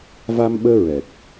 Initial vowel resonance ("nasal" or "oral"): oral